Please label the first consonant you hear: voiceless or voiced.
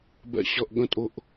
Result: voiced